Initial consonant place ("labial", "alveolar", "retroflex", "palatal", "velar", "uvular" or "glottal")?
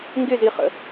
velar